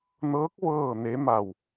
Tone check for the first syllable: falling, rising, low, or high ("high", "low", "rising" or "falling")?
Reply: rising